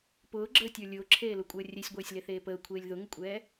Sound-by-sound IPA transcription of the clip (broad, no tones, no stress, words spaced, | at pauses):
pʊːɡ͡ǁəːtʲə˞ lʲʊːǁʰeːlʊkʷʼəː rʲesʲɡʷeːsʲleθeː pəːkʷʰeːlʲ ðʊŋʊkʷʼɛː